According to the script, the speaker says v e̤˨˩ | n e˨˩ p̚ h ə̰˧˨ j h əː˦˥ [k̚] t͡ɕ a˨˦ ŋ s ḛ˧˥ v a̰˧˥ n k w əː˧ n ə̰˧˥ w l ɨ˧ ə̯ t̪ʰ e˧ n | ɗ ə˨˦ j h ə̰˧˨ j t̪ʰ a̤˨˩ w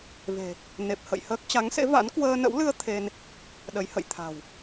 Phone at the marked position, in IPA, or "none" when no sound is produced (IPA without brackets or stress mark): k̚